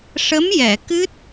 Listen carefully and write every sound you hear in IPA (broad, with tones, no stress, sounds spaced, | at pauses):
ʂ ə˧˥ m j ɛ˨˩˨ k ɨ˦˥ t̚